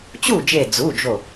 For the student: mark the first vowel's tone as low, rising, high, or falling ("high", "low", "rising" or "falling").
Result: falling